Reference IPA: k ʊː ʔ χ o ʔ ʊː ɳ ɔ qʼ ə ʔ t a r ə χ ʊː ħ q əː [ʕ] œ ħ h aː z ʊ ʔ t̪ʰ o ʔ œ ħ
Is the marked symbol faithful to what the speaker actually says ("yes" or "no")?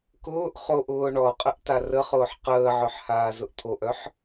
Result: yes